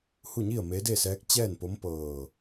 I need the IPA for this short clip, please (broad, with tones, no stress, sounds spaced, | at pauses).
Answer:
h u˥˨ ɲ i˥˨ ə̯ m e˧˥ d e˥˨ s ɛː˧˥ k̚ t͡ɕ ɛː˥˨ n p o˧˥ m p ɤː˧˩